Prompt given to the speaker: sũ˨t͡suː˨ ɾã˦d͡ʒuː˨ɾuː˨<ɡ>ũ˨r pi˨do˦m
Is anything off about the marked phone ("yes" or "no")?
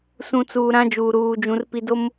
yes